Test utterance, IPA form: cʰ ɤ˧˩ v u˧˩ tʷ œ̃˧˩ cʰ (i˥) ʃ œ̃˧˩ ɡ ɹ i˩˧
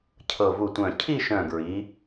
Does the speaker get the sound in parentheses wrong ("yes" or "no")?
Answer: yes